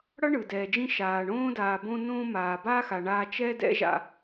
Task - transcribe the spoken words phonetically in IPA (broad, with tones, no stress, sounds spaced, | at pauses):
ɽ ʌ˥ ɳ ɯ˩ d ɛː˩ d͡ʒ ĩ˧ ʃ aː˩ ɳ õː˥ d aː˩ b õ˧ n õː˧ m aː˩ b aː˥ x a˩ ɳ aː˧ t͡ʃ ɛ˧ d ɛ̰˥ ʒ a̰˧